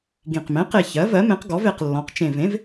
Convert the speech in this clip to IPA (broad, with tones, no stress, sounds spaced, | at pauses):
ɡ ĩ˨˩ q m ẽ˩˥ q e˨˩ ç ɜ˩˥ v ɜ˩˥ m ẽ˩˥ q ɡ ɔ˩˥ v e˨˩ q lː ɔ̃˩˥ q t͡ʃ ẽ˨˩ v ẽ˩˥ v